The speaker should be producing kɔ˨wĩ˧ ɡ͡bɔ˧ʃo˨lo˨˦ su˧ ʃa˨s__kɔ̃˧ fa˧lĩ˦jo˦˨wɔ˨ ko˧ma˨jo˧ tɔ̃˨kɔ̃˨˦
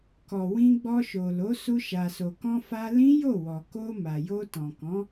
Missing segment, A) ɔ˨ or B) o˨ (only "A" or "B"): B